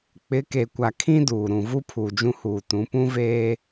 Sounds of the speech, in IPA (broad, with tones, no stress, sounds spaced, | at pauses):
k͡p ɪ˨˦ k e˨ kʷ a˨ kʰ ĩ˦ d uː˨ ɾ ũ˨ v u˦ pʰ uː˨ d͡ʒ ũ˦ h uː˨ t ũ˨˦ p ũ˦ v eː˦